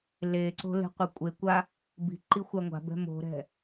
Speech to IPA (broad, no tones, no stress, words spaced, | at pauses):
leǀo̤ le̤qʷɛkʷʼekʷa | bi̤ ǃixʷaŋʷa̤bɛ̤ mo̤ɾɛ̤